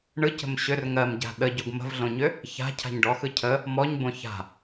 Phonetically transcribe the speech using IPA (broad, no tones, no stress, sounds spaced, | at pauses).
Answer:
ɳ ɯ c ə̤ m ɕ ʏ r ŋ ɜ m ɟ a̤ ɗ ə ɟ o ɡ m ə̤ v ɮ õ ɲ ʏ | ç a̤ cʰ a̤ ɲ ɖ ɔ x ɯ cʰ ə | m ɔ ɲ b õ ç a̤